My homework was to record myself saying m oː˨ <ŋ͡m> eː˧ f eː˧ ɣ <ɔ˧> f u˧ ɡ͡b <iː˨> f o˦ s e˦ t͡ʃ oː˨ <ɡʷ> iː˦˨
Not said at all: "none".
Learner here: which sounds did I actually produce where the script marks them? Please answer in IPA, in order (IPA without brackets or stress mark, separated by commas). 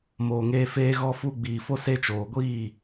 ŋ, ɔ˧, iː˨, ɡʷ